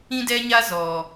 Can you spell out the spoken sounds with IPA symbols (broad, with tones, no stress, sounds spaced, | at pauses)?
ĩ˦ d ɛ˦ ɲ a˦ z ɔ˨